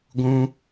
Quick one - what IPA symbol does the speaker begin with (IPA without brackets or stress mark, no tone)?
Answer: ɡʷ